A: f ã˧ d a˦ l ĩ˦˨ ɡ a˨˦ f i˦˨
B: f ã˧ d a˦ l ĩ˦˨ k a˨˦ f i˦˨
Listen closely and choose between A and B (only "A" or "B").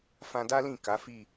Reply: B